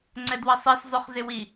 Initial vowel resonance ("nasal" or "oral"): oral